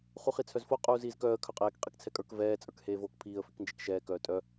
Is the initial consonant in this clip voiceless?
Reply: yes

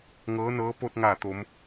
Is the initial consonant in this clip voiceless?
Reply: no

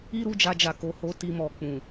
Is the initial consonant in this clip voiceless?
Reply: no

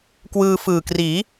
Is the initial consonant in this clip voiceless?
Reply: yes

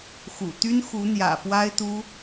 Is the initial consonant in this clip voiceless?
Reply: yes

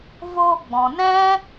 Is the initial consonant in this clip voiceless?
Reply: no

